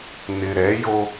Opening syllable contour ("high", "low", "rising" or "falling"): low